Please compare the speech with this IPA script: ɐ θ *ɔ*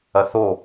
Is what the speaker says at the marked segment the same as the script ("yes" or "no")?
no